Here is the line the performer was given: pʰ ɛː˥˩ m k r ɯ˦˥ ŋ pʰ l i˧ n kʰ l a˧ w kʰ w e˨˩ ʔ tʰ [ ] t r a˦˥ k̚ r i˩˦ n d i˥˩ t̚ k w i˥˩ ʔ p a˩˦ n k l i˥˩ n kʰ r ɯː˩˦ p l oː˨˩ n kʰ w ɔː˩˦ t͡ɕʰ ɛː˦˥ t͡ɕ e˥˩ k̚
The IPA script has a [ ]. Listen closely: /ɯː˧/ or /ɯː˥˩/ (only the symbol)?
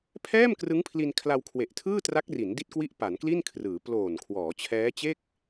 ɯː˥˩